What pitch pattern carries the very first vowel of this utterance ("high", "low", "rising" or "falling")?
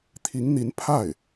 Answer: rising